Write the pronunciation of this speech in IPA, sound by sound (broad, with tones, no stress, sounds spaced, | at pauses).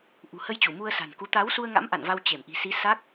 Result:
ʔ ṳ˨˩ h ə˧ j t͡ɕ u˧˩ m u˧ ə̯ s a̤˨˩ n k u˨˦ t̪ a˨˦ w s u˧ ə̯ ŋ a̰˧˥ m ʔ a̰˧˨ n v a˧ w t͡ɕ e˧˩ m ʔ i̤˨˩ s i˨˦ s a˦˥ k̚